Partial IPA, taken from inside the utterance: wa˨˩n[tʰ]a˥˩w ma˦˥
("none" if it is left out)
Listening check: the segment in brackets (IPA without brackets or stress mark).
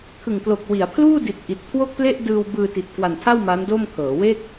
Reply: tʰ